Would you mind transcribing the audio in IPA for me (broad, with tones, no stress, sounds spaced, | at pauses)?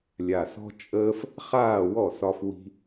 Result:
lʲ a˨ s ɔ̤˧ t͡ʃʼ əː˧ f | χ aː˦˨ w ɔ˦˨ s ɒ˦ f w i̤˦